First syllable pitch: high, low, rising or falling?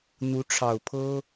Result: rising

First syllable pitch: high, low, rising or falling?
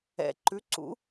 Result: low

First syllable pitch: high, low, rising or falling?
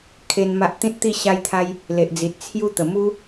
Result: high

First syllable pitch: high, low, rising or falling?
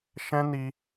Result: high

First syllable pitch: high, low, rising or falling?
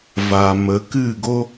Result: low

